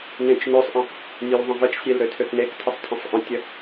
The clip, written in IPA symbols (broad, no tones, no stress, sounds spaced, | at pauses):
n ẽ t͡ʃ n ø sˤ ʔ ə̃ | nʲ ø l ðˤ ə̃ v ə t͡ʃ sʲ e l ɾ ø tʰ ø k n e k tʰ ə sˤ tʰ ə̃ sˤ ʔ ə̃ tʲ ə